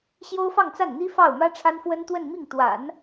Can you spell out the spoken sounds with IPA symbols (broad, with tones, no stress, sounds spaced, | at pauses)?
ɕ j o˥ ʊ̯ f ɑ˥˧ ŋ t͡s a˥˩ n n̪ i˥ f ɑ˥˩ ʊ̯ m ä˥ ʈ͡ʂʰ a˥ n f w ə˥ n t̪ w ə˥˧ n m i˥˩ ŋ t̪ w a̰˨˩˦ n